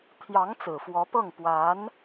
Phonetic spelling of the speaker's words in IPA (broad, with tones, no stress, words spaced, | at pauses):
t̪ʰjɑ˧˥ŋ t͡sɹ̩˨˩fwɔ˧˥pɤ˥˩ŋ pwa˧˥n